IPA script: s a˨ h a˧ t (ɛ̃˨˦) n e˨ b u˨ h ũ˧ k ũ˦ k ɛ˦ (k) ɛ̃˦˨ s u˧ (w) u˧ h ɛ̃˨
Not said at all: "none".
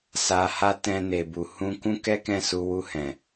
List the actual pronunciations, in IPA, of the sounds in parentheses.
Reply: ɛ̃˧, k, w

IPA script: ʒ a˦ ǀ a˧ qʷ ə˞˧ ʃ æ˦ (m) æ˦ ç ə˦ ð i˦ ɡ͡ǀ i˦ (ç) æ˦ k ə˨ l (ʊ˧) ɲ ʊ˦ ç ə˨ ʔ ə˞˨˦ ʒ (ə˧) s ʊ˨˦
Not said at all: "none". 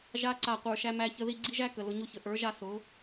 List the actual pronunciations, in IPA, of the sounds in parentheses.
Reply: m, ʒ, ʊ˧, a˧

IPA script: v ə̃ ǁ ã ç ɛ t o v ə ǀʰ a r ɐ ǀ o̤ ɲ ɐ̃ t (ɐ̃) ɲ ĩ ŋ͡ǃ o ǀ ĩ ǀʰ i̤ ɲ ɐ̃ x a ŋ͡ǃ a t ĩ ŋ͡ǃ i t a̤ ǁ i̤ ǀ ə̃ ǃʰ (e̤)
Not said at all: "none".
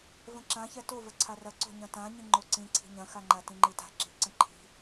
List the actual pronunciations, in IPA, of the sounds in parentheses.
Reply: ã, i̤

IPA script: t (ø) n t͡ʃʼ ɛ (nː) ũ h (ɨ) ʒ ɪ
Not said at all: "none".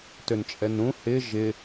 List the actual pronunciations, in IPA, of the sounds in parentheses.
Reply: ø, n, ɪ

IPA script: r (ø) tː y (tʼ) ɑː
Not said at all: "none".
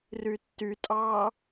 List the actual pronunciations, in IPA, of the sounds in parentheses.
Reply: y, tʼ

